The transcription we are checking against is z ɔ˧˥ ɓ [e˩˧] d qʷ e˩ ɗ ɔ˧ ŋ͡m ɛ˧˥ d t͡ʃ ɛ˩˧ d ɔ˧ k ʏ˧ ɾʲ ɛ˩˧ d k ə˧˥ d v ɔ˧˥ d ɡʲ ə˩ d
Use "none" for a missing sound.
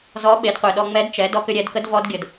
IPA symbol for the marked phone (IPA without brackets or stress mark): e˩˧